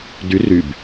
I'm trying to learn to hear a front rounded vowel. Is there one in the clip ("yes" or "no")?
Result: yes